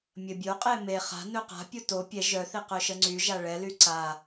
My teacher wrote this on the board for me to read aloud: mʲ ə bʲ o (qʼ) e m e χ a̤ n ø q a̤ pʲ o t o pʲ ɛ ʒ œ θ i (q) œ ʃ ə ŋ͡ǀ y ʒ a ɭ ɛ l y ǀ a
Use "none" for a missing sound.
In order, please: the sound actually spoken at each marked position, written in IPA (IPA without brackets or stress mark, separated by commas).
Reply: qʼ, q